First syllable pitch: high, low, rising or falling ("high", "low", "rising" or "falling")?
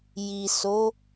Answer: low